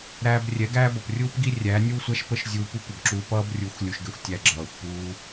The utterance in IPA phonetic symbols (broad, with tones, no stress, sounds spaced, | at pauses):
ɾ æː˧ b rʲ ɛ˨˦ ɡ æː˦ b ʌ˨ p rʲ uː˦ p ɡ i˦ rʲ æː˨˦ nʲ uː˦ sʷ æ˦ ʃ p ə˦ ʃ zʲ uː˧ p u˦ kʷ ə˨ b ǁ uː˧ p ʌː˦ b rʲ u˨˦ xʷ lʲ u˨ ʃ ɡ ɛ˧ xʷ tʲ æ˧ ɡ͡ǁ ʌː˨ xʷ p uː˧